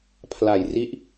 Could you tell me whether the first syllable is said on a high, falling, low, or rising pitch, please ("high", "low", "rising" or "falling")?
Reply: low